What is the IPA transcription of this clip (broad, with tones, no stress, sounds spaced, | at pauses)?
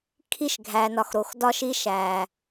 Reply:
kʰ i˦ ʃ ɡʱ æ˨ n ɒ˨ x ɾ o˨ x d ɒ˦ ʃ i˦ ʃ æ˨